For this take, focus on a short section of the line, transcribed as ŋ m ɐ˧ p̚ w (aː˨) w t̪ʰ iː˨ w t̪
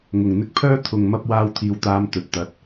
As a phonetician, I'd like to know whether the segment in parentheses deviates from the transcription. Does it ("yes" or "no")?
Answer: yes